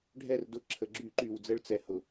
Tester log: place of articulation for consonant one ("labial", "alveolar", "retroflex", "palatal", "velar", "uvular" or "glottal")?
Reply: retroflex